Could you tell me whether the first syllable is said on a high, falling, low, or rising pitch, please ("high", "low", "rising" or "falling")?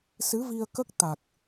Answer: rising